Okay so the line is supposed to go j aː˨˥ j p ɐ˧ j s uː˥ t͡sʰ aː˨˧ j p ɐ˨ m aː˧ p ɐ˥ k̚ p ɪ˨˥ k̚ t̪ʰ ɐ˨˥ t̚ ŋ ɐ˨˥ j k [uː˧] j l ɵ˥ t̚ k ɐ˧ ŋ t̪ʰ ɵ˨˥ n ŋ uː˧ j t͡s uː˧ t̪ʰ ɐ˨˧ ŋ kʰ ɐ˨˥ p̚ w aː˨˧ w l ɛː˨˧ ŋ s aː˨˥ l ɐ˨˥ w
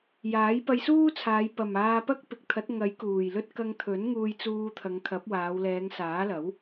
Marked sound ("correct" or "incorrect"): incorrect